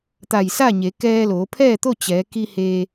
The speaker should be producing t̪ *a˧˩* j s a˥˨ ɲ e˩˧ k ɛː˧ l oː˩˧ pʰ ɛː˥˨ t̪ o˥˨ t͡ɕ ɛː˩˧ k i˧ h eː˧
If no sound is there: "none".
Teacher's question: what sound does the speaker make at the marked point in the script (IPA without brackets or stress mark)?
a˧˩